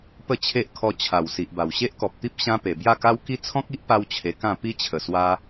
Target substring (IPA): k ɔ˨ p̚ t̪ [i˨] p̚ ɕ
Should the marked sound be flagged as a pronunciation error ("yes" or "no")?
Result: yes